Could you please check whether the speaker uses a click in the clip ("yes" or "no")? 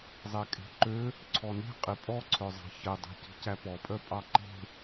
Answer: yes